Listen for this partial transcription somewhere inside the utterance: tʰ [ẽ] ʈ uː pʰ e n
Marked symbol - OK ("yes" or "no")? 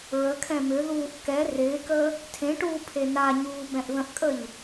yes